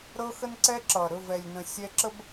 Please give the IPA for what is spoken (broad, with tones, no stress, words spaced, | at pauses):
ɾɤ˦xə˦nǀɛ˦ǁʌː˨ ɾɵ˦˨vɛ˨lʲnə̃˨ sʲɛ˦ǁə˦b